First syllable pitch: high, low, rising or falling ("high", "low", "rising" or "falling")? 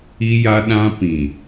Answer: high